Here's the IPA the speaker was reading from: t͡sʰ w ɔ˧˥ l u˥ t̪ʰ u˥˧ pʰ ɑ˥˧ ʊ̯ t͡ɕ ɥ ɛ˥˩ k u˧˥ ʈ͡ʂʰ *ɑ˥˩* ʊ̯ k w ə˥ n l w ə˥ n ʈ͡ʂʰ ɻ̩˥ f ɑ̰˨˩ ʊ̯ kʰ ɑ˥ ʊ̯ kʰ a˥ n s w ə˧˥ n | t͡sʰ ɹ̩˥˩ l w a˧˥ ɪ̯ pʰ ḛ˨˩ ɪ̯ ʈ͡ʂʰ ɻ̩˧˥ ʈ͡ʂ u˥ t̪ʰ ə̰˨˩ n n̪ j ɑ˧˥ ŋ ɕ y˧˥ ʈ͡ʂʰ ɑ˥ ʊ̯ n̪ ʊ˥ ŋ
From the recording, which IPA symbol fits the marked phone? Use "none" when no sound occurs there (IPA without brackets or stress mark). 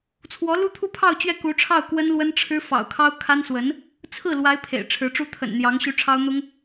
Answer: ɑ˥˩